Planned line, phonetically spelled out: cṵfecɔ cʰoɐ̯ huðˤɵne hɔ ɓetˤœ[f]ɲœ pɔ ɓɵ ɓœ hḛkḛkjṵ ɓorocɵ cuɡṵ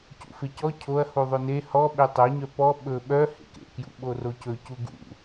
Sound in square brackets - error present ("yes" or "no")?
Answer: yes